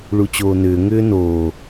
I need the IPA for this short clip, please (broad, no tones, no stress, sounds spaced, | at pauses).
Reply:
ɭ u t͡ɕ oː n ʏː ŋ ʏː n oː